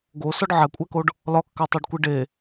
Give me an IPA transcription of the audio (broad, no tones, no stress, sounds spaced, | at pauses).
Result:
ɡ o s ɒ ɖ ʕ æ kʷʼ æ k o ɖ | l ɒ kː æ tˤ o ɖ kʷ i ɖ e